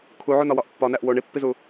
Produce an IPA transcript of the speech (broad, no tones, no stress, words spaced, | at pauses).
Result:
kʰuʕunɒwɒʔ pːɒnæʔ woɳ ipːizu